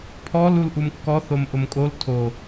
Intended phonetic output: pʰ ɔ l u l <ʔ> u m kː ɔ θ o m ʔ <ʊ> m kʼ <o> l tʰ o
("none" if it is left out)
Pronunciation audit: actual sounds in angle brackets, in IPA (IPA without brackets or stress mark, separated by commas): ʔ, ʊ, o